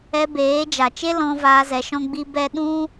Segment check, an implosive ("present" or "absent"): present